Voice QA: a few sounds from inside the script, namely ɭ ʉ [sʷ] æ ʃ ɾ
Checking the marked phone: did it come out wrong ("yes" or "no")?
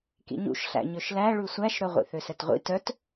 no